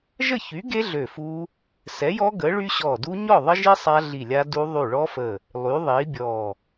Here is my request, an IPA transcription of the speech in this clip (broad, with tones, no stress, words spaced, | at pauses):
ʒə˥˨çy˨˥ɡe˦˥ ɮø˧˩fu˦˥ | sɛ˨˥jɔ˦˥ ɡə˨˥ɭy˦˥ɕɔ˧˩du˦˥ ɲɔ˥˨ðˤə˦˥ʒi˦˥ sˤa˦˥ɮi˧˩lʲa˦˥du˦˥ ðˤy˧˩ɭɔ˦˥fə˧˩ | lˠy˨˥ðˤi˨˥bʲɔ˧˩